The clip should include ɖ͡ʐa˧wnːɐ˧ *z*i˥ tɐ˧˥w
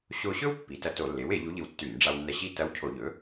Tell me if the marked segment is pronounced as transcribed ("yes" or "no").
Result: no